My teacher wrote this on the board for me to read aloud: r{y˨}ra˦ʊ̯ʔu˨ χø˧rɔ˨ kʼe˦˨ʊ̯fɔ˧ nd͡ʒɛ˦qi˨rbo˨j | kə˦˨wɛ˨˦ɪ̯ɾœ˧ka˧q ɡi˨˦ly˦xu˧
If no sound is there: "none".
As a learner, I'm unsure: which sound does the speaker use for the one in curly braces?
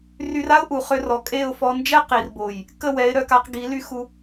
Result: y˧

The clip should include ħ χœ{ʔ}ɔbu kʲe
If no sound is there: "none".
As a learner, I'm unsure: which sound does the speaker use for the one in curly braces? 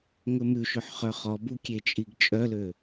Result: χ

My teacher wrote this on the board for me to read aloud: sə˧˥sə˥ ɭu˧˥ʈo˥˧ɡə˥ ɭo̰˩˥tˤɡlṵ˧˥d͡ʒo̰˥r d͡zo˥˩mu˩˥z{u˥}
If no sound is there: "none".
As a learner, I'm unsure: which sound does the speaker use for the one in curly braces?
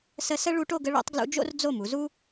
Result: u˥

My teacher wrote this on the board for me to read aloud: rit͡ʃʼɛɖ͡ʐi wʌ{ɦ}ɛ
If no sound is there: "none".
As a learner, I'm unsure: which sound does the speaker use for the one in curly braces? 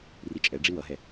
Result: ɦ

